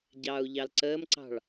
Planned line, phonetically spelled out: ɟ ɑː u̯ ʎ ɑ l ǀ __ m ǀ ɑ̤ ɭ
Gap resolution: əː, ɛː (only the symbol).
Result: əː